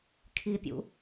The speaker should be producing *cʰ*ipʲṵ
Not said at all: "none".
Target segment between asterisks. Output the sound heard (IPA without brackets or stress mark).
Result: kʰ